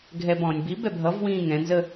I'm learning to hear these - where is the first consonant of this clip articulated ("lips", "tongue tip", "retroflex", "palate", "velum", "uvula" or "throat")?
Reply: velum